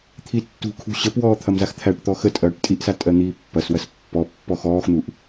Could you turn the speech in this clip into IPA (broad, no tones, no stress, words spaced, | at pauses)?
t̪ʰitːṳkʰṳ ɕəpwɔː t̪ʰɐmzaxt̪ʰæʈt̪ɔ xətʼɐːʈ tʼiʔsa tʼɜn̪iːpːɐswɐs pːɔ pːɔxɔːxn̪uʔ